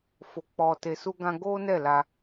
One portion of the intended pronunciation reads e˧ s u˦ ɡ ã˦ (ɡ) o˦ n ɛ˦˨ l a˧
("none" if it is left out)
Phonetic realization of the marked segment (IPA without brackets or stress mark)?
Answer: ɡ